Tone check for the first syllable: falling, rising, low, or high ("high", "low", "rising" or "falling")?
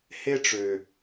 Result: high